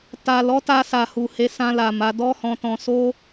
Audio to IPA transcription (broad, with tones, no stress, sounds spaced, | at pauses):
t a˨ l ɔ˨˦ t a˧ s a˨ h u˨ h e˨˦ s ã˧ l a˨ m a˨˦ d ɔ˦ h ɔ̃˧ t ɔ̃˧ s o˦